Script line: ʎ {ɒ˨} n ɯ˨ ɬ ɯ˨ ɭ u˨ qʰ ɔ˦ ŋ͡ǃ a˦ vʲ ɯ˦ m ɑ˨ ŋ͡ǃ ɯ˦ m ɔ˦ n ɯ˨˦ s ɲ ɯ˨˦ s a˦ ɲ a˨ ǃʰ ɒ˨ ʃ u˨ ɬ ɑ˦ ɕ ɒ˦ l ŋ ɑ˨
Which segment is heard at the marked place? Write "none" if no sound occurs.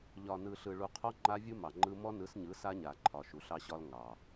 ɒ˨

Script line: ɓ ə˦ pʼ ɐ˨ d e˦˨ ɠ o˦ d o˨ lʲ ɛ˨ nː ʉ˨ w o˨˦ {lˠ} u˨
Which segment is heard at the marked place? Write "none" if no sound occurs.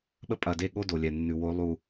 lˠ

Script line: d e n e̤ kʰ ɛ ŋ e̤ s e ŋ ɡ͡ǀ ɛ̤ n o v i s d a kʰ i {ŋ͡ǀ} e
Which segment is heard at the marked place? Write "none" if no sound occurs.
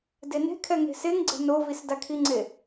ŋ͡ǀ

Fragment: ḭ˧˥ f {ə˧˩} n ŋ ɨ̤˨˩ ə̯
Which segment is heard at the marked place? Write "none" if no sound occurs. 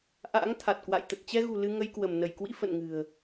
ə̰˧˨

